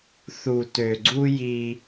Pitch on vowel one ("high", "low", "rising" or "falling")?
low